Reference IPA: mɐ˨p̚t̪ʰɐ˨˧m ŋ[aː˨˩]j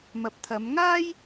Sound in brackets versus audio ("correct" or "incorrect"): incorrect